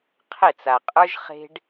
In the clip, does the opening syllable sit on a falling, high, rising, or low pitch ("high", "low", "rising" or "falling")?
falling